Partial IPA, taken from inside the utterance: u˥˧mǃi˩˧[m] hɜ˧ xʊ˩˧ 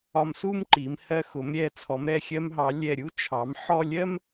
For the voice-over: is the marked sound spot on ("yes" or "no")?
yes